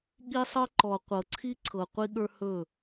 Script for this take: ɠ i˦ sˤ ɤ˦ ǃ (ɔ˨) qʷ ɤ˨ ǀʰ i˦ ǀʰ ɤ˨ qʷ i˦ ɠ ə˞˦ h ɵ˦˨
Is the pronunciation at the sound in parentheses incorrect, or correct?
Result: correct